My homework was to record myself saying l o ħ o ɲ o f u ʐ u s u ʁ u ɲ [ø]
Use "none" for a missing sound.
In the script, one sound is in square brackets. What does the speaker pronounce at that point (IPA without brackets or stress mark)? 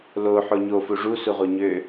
ø